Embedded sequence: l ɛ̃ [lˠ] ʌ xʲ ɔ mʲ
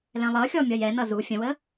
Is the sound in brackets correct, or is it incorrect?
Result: correct